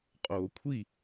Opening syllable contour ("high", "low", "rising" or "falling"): low